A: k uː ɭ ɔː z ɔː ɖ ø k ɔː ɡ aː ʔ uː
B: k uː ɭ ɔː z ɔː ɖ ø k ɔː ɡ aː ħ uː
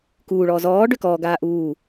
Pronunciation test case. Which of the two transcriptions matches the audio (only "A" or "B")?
A